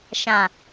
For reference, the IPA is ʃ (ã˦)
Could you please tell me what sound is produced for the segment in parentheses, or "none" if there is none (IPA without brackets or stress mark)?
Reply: ã˨